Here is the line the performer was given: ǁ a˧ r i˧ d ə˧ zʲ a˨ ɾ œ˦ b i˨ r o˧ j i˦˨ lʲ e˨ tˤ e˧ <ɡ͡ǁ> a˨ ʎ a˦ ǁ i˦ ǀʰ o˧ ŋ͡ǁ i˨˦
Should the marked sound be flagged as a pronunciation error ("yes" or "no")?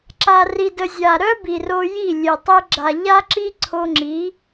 no